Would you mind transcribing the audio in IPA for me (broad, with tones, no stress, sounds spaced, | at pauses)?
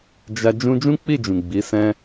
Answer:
d͡ʒ a˧ d͡ʒ ũ˧ d͡ʒ ũ˦ k͡p i˦˨ d͡ʒ ũ˨ ɡ͡b i˨˦ s ɛ̃˦